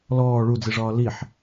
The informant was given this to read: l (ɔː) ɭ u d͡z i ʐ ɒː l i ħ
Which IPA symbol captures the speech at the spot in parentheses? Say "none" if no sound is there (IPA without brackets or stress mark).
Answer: ɔː